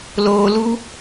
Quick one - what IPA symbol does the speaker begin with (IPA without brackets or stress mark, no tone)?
l